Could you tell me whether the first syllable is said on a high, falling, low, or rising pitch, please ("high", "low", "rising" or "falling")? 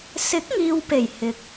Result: rising